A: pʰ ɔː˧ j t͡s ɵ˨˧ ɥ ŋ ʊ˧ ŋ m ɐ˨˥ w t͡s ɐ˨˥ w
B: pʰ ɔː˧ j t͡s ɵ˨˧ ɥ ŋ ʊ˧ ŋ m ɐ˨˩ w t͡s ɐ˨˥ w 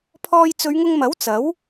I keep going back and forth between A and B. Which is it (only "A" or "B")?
A